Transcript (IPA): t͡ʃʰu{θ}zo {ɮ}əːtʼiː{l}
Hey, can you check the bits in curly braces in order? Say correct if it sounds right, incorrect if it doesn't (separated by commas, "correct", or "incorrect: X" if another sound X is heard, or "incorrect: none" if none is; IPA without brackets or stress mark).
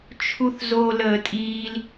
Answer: correct, incorrect: l, correct